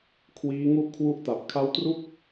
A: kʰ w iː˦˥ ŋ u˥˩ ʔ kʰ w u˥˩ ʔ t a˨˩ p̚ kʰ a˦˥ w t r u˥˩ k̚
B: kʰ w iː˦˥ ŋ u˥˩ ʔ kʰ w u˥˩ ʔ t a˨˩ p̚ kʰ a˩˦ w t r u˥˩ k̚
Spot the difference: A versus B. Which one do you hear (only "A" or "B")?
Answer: A